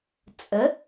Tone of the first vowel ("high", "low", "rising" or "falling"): rising